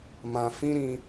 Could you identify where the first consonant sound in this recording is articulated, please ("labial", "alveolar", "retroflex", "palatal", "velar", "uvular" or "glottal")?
labial